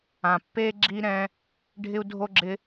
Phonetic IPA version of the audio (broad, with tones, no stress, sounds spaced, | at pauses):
ã˨ pː e˦ ɡ͡ǁ i˦ ɾ ɛ̃˦ | ɖʱ ɪ˦ u̯ dʱ o˦ ɡ͡ǁ ɪ˦